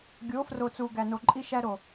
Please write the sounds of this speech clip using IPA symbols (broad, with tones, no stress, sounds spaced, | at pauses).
ɡʲ o˨˦ f r o˨ t͡s u˨ ɡ æ˨ n o˨ ǃʼ i˧ ʃ æ˧ ɾ o˨